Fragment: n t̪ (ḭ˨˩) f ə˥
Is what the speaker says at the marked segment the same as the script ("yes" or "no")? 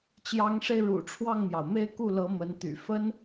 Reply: no